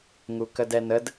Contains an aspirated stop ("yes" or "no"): no